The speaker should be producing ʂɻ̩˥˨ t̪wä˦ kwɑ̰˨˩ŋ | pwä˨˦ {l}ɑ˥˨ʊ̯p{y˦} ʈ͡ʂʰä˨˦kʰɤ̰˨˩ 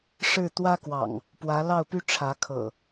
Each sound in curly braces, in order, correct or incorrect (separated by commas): correct, correct